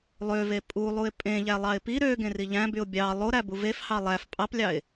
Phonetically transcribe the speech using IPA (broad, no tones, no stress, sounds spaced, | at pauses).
lˠ ø v e pʼ u lˠ u ɪ̯ pʼ ẽ ʎ æ lˠ ɑ ɪ̯ p i ɾ ø ɡ ẽ r i ʎ æ̃ b y ʊ̯ bʲ ɑ lˠ o ɾ æ b u v e f h ɑ lˠ æ f pʼ ɑ p lʲ ɑ ɪ̯